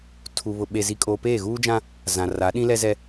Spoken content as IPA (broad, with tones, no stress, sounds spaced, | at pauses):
tʰ u˨ β ʊ˨ ɓ e˨ z i˨ kʼ oː˨ p eː˦˨ ɣ uː˦ d͡ʒ ã˦ | z ã˨ r a˨˦ ɗ ĩ˦ l ɛ˦ z ɛ˦